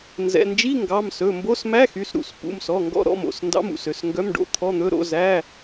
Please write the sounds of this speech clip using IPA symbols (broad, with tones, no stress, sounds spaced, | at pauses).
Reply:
n z ɛ̰˩˧˩ n d͡ʒ i˧˥˧ ŋ ɡ ɑ˩˧˩ m s ɵ˩˧˩ m b o˧˥˧ s m æ˧˥˧ x y˩˧˩ s ɾ ṵ˩˧˩ s p ṵ˩˧˩ m s ɔ˩˧˩ ŋ ɡ ɔ̰˧˥˧ ɾ ɔ̰˩˧˩ m o̰˩˧˩ s n d ɑ̰˧˥˧ m ṵ˩˧˩ s ø˩˧˩ s ŋ ɡ œ˧˥˧ m ɖ o̰˧˥˧ t̪ʰ ɔ˧˥˧ n̪ ɵ˧˥˧ ɾ o̰˧˥˧ z æ˧˥˧